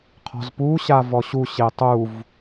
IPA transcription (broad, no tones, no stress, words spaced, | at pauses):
qʰɔ̤zpu ɕavɔɕu ɕetˤuv